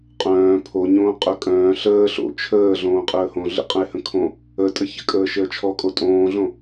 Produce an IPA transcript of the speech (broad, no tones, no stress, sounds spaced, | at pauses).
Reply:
qʼ œ̃ː pʰ o ɲ õː qʼ œ kʼ œ̃ː ɬ əː ɬ o̰ t͡ʃʰ əː ɮ õː qʼ əː h õ ɮ ə̰ qʼ ə̃ ɪ̯ h ə̃ kʰ õ | ə tʼ ə ç ə̰ kʼ əː ʃ əː t͡ʃʰ ɔ kʼ o tʼ õː ɮ õ